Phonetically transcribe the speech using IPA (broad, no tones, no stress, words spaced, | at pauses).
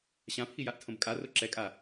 ɕãpʰijaʔtʰõb kʼaro ǁɛkʼa